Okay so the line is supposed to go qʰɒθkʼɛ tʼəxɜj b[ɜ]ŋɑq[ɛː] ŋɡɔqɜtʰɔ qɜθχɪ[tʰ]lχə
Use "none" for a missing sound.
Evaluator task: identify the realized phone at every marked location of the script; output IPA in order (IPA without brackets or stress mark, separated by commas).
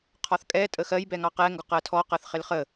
ɛ, ɛ, none